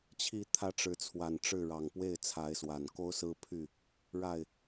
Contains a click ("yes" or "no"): no